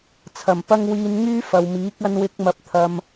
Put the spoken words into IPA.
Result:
t͡sʰ ɐ˨˩ m p ɐ˥ ŋ w iː˧ n ŋ yː˥ f ɐ˨ w m iː˨˥ k̚ ɐ˥ n w ɪ˥ k̚ m ɐ˧ p̚ t̪ʰ ɐ˧ m

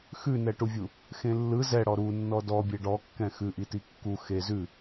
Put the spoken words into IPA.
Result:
x ʉ n ɛ ʈ u vʲ u | x ẽ lː ɯ z ɛ ɽ ɔ ɾ u nː ɔ d ɔ bʲ e ɖ ɔ kː ɛ̃ x ʉ ʔ i t i kː u x e z ʉ

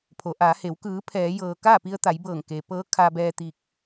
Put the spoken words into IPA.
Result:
pʰ o˩˧ ʔ aː˩˧ h e˩˧ w k ɯː˩˧ pʰ ɛː˩˧ j ɤː˩ k aː˥˨ p i˧ ə̯ t̪ a˩˧ j b ɤː˧˩ ŋ k e˩ p ɤː˧˥ kʰ a˧ b ɛː˧ t̪ i˧ k̚

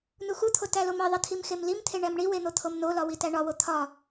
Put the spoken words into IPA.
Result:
n u x u t̪ʰ o t æ l o m i ðˤ i t̪ʰ i m x e m l i m t̪ʰ e ɳ æ m ɳ i w e n̪ o t̪ʰ o m n o l ɒ w i t æ ɳ ɒ w o t̪ʰ ɒ

